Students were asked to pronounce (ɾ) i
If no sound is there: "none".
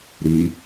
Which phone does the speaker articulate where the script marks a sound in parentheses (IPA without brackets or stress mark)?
ɾ